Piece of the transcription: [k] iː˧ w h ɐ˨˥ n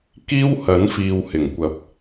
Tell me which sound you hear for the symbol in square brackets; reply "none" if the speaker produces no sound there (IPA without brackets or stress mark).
k